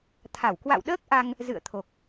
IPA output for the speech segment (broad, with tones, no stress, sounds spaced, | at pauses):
t̪ʰ a˧˩ w k w a̰˧˨ w ɗ əː˦˥ k̚ ʔ a˧ ŋ | z ɨ̰˧˨ ə̯ t̪ʰ o˨˩ k̚